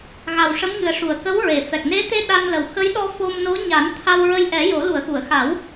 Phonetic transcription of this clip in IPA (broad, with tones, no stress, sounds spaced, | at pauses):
ɣ a˨˩ w ʂ ə˧˥ m ŋ ɨ˨˩ ə̯ ʂ u˨˩ ə̯ k ə˧˥ w ɹ e˨˩ f ɛ˨˩ k̚ n e˧˥ t̪ e˧ ɗ a˧ n l ə˨˩ w x ə˧˥ j ɗ ɔ˧ f o˧ m n o˧˥ ɲ a˨˩˦ n t̪ʰ a˧ w ɹ ə˧ j ʔ ɛ˨˩˦ j o˨˩˦ l u˨˩˨ ə̯ x u˨˩˨ ə̯ x a˨˩˦ w